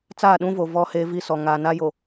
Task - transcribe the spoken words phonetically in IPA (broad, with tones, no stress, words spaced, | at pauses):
t͡saː˦˨ɗũ˦vo˨ vɔ˦heː˦vi˦sɔ˨ ŋaː˨na˦jo˨